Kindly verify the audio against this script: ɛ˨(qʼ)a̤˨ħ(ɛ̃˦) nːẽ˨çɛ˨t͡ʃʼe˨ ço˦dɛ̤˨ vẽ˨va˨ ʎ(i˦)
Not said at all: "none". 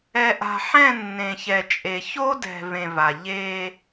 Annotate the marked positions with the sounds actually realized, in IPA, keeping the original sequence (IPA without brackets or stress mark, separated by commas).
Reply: ʔ, ɛ̃˦˨, e˦